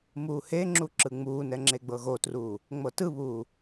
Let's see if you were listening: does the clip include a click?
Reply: yes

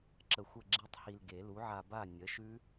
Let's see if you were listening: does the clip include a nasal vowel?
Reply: no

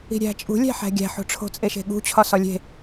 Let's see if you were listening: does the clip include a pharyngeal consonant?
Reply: yes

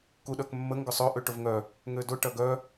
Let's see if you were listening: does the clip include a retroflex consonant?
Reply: yes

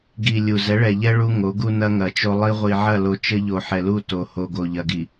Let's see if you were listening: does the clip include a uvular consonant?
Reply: yes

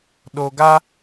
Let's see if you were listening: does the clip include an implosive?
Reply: yes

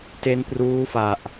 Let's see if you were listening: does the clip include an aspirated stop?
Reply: no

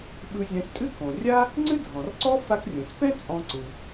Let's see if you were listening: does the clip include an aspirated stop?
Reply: no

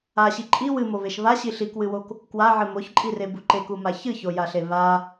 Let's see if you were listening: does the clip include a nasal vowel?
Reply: no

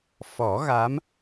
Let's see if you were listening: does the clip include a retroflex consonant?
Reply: no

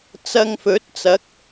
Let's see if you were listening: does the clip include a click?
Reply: no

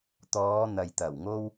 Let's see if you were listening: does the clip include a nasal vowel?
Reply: no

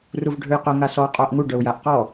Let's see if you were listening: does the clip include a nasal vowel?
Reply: no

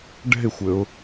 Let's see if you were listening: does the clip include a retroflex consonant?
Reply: yes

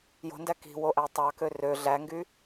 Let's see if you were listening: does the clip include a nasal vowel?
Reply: no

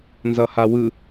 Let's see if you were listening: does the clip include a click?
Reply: no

